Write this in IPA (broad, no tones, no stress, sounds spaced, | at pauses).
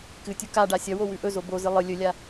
k ɨ tʲ u k a ɖ a sʲ ɐ w o w ʉ ʔ ɵ z o b o z ɨ lˠ ɨ lʲ ɵ lʲ a